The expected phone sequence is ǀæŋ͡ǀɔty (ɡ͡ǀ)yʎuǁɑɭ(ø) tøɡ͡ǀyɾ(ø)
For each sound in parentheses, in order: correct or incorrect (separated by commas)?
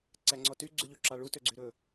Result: correct, incorrect, incorrect